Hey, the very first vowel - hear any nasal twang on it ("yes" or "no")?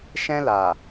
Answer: yes